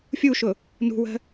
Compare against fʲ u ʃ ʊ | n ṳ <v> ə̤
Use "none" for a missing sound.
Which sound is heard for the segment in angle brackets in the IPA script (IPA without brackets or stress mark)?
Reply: w